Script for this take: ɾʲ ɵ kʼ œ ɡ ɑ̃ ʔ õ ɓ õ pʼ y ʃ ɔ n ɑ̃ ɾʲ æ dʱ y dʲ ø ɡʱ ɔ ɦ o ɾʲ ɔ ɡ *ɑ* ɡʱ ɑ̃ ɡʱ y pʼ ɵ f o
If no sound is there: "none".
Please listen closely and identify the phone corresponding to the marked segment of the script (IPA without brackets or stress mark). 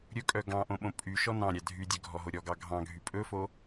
ɑ